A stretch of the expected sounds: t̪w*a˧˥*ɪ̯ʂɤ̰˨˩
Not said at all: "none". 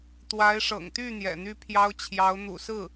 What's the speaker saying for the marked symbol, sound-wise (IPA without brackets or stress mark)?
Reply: a˧˥